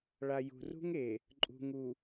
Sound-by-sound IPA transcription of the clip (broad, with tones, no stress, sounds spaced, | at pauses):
ɭ a˨ j ṳ˨ r ṳ˦ ŋ e˨ | ǃʼ ṳ˨ ŋ u˨